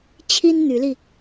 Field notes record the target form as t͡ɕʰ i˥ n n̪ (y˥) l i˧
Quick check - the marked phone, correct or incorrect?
incorrect